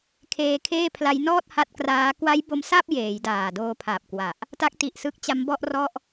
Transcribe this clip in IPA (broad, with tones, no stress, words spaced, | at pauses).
kʰeː˧kʰeː˥˩pʰla˦˥j nɔː˥˩t̚ha˦˥t̚kraː˦˥ kwa˦˥j bo˦˥msa˥˩p̚ jeː˩˦jdaː˨˩ doː˧pʰa˨˩p̚kwa˨˩ʔ | ta˦˥k̚ti˨˩ʔsɯ˦˥k̚t͡ɕa˦˥m bɔ˥˩ʔrɔ˥˩ʔ